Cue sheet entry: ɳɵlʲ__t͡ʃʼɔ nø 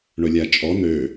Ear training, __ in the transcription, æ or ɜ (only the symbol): æ